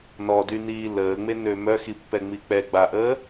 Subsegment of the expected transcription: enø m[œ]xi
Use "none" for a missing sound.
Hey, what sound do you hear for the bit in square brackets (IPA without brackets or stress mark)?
œ